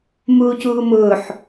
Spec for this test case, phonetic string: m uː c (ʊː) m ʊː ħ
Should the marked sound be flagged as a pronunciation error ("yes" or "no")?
yes